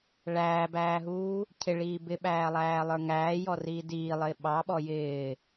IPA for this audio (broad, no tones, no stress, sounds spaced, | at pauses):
ɭ æː b æː ɦ uː | cʰ ɪ ɭ iː b ɪ ɓ æː lˠ æː lˠ ə˞ ŋ æː j ɔ r iː d iː lˠ ɪː ɓ ɑ ɓ ɔ j ɪː